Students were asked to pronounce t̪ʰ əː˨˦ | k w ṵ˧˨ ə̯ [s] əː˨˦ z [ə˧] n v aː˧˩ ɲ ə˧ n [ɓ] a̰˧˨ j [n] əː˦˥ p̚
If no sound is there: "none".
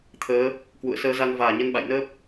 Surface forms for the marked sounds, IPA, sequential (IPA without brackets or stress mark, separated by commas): s, a˧, ɓ, n